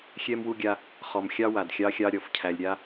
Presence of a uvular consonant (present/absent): present